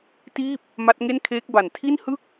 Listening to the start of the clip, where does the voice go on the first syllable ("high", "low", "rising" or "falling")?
falling